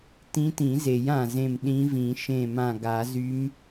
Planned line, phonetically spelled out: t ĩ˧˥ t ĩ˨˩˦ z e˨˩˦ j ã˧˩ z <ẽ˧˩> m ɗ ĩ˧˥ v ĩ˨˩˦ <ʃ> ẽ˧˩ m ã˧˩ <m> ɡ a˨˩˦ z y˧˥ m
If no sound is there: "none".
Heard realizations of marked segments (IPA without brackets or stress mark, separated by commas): ẽ˧˩, ʃ, none